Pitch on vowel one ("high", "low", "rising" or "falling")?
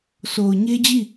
low